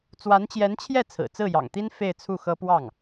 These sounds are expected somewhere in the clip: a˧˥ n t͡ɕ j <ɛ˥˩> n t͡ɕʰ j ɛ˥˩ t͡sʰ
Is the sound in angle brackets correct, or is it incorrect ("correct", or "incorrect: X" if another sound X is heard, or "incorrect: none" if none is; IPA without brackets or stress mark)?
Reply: incorrect: ɛ˧˥